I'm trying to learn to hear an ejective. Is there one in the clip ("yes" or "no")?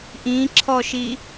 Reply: no